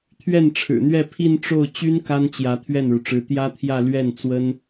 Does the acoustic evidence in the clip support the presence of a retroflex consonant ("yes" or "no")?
yes